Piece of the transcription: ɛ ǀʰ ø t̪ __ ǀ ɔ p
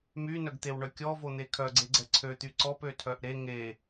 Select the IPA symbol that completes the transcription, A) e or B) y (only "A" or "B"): B